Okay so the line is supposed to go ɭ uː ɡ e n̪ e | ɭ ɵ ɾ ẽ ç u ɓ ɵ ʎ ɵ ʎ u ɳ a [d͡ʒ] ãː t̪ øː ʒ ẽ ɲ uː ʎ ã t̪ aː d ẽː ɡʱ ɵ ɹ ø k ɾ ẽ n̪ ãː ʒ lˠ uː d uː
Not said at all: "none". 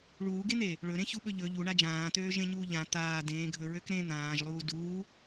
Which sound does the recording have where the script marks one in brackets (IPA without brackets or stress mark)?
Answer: d͡ʒ